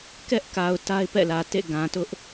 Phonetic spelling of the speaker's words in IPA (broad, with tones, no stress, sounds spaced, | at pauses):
k ɛ˦ ʔ k a˨ ʊ̯ t a˦ ɪ̯ p ɛ̰˦˨ l ä˨ t ḛ˦˨ ɡ ã˨ t ʊ˦ ʔ